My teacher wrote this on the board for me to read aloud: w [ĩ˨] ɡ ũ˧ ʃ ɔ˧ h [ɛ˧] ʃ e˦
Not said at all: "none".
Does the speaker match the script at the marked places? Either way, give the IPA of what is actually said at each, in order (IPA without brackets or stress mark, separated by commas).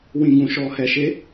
ĩ˧, ɛ˧